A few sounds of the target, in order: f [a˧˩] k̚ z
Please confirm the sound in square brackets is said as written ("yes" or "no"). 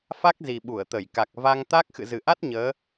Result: no